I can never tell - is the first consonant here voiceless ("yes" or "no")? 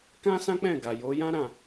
yes